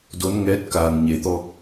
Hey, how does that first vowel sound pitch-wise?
rising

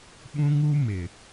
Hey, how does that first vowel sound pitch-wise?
high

